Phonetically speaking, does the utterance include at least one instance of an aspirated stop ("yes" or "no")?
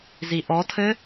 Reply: yes